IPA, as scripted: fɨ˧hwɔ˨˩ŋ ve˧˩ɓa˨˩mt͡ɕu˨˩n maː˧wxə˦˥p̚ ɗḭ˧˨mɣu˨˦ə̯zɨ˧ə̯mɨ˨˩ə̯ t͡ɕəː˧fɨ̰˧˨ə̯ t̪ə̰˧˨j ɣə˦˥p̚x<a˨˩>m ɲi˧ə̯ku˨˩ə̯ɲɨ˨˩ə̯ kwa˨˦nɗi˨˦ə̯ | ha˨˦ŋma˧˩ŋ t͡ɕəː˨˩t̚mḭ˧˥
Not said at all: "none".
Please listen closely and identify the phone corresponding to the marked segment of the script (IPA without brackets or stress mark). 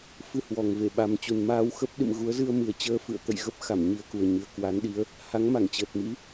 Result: a˧˩